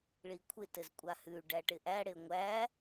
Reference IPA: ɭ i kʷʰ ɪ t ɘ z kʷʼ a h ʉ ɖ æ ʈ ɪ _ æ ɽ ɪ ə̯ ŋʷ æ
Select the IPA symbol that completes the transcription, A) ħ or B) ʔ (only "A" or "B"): B